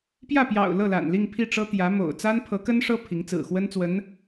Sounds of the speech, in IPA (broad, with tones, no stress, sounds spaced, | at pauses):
p j ä˥˩ p j ɑ̰˨˩ ʊ̯ l ɤ˥˩ l a̰˨˩ n l i˥˧ ŋ pʰ i˥˩ ʈ͡ʂ ɤ˥ t̪ j ä˧˥ m o̰˨˩ ʊ̯ t͡s a˥ n pʰ ɤ˧˥ k ə˥ n ʂ ɤ˥ pʰ i˧˥ ŋ t͡s ɹ̩˨˩ x w ə˥ n t͡s w ə˧˥ n